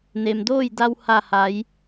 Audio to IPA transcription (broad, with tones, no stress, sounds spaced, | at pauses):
n e˩ m d oː˥˨ j d a˧ w h a˧˩ h a˩˧ j